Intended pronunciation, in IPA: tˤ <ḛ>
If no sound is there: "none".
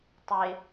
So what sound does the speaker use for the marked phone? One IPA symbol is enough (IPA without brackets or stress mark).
e